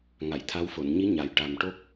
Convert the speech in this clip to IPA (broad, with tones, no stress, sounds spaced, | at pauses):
ŋ a˨˩˨ j t̪ʰ a˧˥ w f o˨˩˨ n ɲ i˧˥ ɲ a˨˩ j ʈ a˨˩ m ʈ o˦˥ k̚